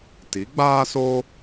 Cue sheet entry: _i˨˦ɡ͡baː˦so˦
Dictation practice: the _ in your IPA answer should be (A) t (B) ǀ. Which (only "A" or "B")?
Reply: A